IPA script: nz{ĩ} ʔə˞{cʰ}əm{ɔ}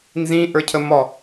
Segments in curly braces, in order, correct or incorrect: correct, correct, correct

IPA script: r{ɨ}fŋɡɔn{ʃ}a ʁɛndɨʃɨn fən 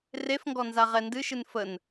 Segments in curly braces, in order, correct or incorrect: incorrect: e, incorrect: z

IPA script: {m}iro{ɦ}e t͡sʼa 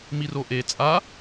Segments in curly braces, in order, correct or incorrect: correct, incorrect: ʔ

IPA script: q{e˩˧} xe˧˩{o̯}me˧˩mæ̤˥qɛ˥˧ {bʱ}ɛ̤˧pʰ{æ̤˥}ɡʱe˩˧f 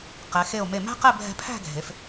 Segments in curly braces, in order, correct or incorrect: incorrect: ɛ˩˧, correct, correct, incorrect: æ̤˥˧

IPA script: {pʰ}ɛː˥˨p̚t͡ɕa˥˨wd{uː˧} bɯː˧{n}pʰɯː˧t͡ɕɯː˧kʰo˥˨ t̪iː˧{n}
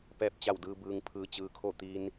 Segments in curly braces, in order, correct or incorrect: incorrect: p, incorrect: ɯː˧, incorrect: ŋ, correct

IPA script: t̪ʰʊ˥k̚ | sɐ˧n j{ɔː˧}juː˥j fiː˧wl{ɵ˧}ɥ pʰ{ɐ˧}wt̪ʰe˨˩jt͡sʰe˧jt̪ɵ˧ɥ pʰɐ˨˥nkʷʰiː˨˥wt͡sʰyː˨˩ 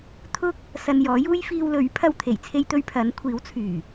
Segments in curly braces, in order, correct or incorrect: incorrect: ɔː˨˥, incorrect: ɵ˨˥, correct

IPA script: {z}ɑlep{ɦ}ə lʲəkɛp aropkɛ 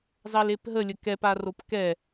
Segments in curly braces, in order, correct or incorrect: correct, correct

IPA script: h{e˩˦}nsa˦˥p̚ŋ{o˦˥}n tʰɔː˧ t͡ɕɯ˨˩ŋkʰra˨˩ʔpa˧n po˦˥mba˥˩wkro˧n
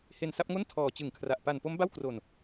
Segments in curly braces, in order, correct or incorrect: incorrect: e˧, incorrect: o˥˩

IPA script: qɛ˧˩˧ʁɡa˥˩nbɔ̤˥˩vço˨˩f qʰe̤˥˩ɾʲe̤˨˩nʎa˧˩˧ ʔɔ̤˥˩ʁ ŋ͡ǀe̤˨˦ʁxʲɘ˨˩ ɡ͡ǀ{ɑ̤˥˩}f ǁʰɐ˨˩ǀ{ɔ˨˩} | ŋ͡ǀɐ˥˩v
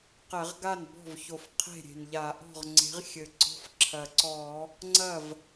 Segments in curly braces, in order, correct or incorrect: incorrect: ɔ̤˥˩, incorrect: ɔ˧˩˧

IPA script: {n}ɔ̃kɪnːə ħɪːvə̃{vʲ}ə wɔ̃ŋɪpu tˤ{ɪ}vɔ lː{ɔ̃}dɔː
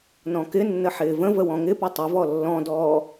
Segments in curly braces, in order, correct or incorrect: correct, incorrect: v, correct, correct

